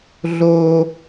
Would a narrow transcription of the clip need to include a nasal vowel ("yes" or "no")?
no